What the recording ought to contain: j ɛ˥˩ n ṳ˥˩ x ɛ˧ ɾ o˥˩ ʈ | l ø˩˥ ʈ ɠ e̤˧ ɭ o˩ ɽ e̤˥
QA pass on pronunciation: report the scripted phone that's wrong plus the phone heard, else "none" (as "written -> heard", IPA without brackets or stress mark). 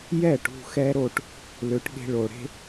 n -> ʈ